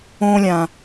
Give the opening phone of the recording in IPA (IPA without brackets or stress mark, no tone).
õː